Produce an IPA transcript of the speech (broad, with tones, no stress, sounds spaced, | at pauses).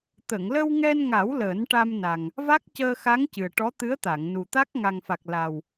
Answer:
t̪ ə˨˩˨ ŋ l ə˧ w ŋ ɛ˧ n ŋ a˨˩˦ w l əː˨˩˦ n ʈ a˧ m n a˨˩ ŋ | v a˦˥ k̚ c əː˧ x a˧˥ ŋ c ɨ˨˩ ə̯ ʈ ɔ˧˥ t̪ ɨ˧˥ ə̯ t̪ a˨˩˨ ŋ n u˨˩ t̪ a˦˥ k̚ ŋ a˨˩ ŋ f a˨˩ k̚ l a˨˩ w